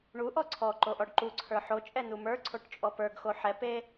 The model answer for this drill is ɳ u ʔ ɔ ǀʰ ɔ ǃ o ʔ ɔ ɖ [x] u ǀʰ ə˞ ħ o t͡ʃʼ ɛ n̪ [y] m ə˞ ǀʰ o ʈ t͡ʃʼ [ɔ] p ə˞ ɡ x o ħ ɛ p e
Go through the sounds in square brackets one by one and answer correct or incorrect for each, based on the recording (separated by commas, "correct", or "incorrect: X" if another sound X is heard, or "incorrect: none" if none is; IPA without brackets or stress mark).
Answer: incorrect: ǃ, incorrect: u, correct